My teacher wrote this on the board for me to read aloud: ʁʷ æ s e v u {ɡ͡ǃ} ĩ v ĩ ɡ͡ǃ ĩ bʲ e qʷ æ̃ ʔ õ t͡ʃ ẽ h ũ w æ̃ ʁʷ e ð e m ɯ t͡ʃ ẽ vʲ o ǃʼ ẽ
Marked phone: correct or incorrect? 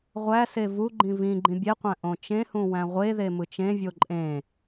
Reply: correct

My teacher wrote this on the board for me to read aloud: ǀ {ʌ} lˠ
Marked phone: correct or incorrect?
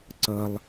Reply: correct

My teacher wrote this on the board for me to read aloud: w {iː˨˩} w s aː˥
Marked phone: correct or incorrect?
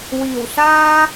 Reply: correct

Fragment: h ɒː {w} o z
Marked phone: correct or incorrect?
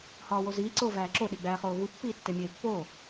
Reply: correct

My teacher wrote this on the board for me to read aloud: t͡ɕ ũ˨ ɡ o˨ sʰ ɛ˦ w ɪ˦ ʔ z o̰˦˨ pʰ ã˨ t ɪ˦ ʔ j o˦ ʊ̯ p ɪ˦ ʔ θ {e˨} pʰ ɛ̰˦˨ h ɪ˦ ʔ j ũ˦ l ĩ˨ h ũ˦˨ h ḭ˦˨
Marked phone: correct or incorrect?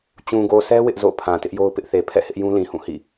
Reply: correct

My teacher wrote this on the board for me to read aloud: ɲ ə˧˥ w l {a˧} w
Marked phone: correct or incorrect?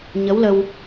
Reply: incorrect: ə˧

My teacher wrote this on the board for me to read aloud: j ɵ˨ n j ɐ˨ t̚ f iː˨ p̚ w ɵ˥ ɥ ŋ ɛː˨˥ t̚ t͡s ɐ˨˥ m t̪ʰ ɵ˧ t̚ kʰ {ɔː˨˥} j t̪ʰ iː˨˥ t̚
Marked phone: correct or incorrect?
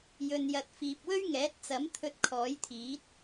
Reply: correct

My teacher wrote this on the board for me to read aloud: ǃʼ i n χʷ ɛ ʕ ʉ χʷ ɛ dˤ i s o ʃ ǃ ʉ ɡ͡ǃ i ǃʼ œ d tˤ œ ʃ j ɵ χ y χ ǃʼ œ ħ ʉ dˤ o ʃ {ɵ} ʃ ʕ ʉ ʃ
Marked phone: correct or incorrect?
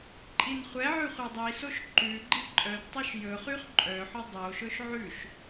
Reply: correct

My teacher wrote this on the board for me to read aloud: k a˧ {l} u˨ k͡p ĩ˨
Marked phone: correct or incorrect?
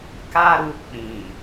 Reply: incorrect: ɾ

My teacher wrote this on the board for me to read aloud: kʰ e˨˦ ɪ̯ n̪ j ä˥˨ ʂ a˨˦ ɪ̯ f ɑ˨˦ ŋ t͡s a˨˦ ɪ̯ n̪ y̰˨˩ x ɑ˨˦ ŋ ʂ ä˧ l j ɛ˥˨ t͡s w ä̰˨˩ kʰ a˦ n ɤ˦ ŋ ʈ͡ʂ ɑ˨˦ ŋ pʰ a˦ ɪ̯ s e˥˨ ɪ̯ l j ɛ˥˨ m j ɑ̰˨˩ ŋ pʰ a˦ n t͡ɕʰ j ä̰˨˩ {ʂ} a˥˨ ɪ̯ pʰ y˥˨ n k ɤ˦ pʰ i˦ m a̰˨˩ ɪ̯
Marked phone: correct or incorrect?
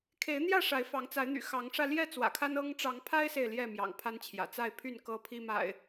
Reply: incorrect: t͡s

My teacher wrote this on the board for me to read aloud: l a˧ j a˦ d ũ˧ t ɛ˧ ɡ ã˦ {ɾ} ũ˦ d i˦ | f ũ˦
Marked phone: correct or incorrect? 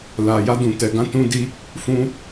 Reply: incorrect: t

